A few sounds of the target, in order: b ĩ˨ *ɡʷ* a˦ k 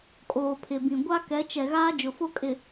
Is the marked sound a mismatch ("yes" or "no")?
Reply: no